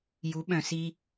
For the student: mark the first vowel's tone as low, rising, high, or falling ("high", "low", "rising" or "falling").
rising